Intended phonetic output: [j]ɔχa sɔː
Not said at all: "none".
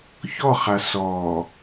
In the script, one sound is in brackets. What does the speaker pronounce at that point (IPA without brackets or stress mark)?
ç